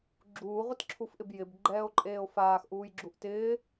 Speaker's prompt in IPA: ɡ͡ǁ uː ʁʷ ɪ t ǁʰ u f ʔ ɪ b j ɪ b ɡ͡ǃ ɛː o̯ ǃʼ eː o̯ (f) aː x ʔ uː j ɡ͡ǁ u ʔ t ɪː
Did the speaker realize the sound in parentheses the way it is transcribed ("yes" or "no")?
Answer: yes